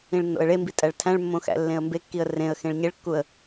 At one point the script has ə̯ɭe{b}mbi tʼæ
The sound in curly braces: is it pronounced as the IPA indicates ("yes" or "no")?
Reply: no